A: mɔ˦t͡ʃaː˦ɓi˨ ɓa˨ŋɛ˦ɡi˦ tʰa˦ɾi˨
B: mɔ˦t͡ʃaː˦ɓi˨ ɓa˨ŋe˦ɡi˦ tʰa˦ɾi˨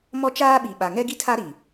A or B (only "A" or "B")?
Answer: A